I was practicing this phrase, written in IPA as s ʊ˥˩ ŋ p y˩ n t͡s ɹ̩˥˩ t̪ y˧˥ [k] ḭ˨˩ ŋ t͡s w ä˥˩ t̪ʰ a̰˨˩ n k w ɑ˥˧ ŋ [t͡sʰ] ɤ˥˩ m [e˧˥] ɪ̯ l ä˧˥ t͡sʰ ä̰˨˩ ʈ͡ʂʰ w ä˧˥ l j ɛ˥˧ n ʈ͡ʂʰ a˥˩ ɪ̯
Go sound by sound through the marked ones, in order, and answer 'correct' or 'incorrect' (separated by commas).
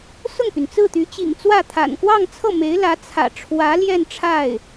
incorrect, correct, correct